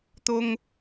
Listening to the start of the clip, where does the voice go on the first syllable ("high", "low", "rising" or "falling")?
high